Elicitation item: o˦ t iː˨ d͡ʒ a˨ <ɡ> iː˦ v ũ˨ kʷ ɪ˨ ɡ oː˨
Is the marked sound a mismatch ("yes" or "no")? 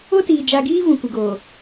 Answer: no